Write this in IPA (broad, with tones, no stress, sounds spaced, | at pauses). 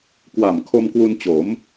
k w a˨˩ m kʰ o˧ m k w u˧ n t͡ɕ o˩˦ m